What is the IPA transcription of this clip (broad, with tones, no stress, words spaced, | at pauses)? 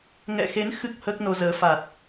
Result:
ŋɛ̰˧˨xe˨˦n xɨ˦˥k̚ həː˦˥k̚no˧zəː˨˦ faː˨˩t̚